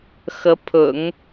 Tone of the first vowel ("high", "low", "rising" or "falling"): rising